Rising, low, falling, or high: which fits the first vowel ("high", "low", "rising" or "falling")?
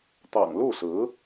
low